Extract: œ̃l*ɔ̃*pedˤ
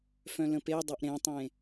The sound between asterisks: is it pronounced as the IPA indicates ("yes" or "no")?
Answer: no